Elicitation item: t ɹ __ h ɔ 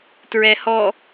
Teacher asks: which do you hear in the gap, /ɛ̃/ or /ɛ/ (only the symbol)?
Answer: ɛ